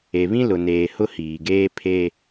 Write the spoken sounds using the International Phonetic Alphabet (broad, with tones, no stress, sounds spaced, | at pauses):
e˨ β ĩ˦ l ʊ˨ n eː˨ h ʊ˦ h iː˨ ɡ eː˦ pʰ e˦